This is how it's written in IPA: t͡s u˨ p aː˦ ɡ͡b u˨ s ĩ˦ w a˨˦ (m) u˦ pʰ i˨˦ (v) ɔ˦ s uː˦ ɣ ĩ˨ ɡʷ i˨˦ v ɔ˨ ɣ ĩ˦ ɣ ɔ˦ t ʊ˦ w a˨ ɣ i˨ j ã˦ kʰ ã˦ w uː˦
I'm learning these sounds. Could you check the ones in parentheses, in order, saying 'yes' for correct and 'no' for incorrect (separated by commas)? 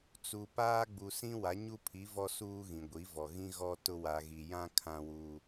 no, yes